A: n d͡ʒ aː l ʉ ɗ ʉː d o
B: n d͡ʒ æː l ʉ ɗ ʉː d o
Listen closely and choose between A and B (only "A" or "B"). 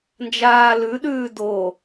A